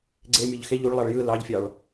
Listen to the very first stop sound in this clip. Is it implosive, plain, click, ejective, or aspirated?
click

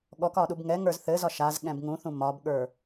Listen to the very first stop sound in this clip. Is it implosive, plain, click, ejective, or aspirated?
implosive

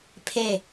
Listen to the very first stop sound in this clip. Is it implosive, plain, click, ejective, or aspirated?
aspirated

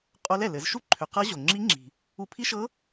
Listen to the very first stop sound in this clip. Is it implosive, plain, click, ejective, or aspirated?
ejective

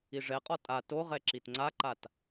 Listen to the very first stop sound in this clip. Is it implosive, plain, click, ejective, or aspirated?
ejective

